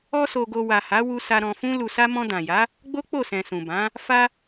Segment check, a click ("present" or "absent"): absent